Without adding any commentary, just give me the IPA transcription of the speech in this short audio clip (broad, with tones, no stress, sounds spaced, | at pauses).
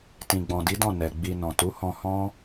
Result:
t ĩ˨ ɡ͡b ɔ̃˨ d i˨˦ d ɔ̃˦˨ n ɛ˨ ɡ͡b i˨ n ɔ̃˨ t u˨˦ h ɔ̃˧ h ɔ̃˦